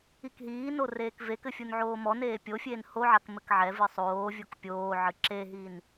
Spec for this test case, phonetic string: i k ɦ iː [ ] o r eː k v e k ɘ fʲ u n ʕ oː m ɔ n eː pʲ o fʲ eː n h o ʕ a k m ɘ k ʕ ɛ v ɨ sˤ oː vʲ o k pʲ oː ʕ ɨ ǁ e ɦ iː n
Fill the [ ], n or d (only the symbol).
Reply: n